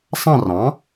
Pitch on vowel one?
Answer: falling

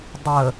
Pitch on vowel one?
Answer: low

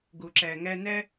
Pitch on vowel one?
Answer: low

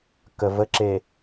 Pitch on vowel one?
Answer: low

